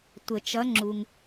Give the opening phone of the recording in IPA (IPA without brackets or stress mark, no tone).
tʷ